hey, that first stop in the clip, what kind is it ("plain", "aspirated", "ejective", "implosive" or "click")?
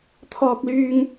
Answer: aspirated